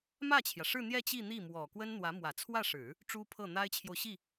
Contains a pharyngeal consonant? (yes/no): no